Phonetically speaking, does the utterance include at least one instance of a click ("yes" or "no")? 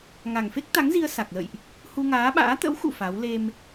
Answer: no